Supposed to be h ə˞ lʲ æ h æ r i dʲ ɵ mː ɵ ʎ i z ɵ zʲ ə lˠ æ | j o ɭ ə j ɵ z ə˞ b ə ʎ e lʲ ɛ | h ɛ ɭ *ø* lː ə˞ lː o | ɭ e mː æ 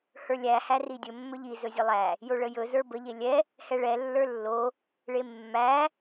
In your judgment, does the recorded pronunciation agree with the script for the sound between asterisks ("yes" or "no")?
no